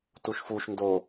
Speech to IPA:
t u ʃ f u ʃ n d o

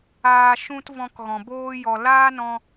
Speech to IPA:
aː˨ ʃ ũ˧ t v ɔ̃˧ k ɣ ɔ̃˨ b oː˦ j ɔ˧ l aː˦ n ɔ̃˧

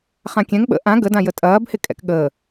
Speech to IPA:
χ ã kʲ ɛ̃ ŋ ɓ ə̰ ʔ ã ɡ ə d ã j ə tʼ ɐː b h ɪ kʼ ɛ̰ k ɠ əː

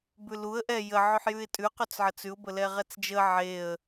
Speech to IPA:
b ʉ l u ə̯ ʔ ɛ j ə ʕ ʉ ħ j ʉ ɪ̯ tʼ ʉ q ʉ t͡s ʕ ə t͡s ʉ ʊ̯ b ə l ɛ ʁ ɛ t͡s d͡ʒ ə ʕ e ə̯

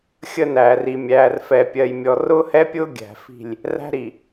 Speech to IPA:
xʲ ə˦ n æː˨ r i˨ mʲ æː˨ r f ɛ˨ pʲ ɜ˨ j mʲ ɔ˨ r ʊː˦ h ɛ˦ pʲ ʊː˦ ɡʲ æ̤˨ f i̤˦˨ lʲ | r æ̤˦ ɾ i˨

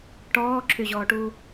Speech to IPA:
ʈ ɔː ǁʰ y ʑ ɔː ʈ uː

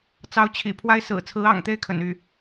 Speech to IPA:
t͡s ɑ˧˥ ʊ̯ t͡ɕʰ ḭ˨˩ pʰ w a˥ ɪ̯ s ɹ̩˨˩ t͡sʰ ɹ̩˧˥ ɑ̰˨˩ ŋ t̪ e˥˩ ɪ̯ kʰ ə̰˨˩ n y˥˩

